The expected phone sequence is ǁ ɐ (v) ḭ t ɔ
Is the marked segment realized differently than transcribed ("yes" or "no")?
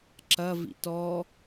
no